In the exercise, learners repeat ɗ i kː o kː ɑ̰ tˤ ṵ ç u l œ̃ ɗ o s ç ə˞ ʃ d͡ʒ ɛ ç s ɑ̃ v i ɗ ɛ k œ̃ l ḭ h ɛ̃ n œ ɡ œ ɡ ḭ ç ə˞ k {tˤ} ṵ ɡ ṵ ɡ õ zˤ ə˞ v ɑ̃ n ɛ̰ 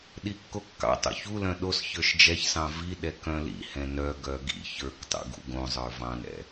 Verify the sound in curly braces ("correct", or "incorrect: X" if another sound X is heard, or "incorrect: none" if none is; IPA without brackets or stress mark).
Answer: correct